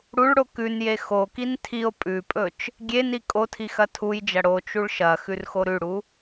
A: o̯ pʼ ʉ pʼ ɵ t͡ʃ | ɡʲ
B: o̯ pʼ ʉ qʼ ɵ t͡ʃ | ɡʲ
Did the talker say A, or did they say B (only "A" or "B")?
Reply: A